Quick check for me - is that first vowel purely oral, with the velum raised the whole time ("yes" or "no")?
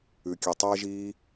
yes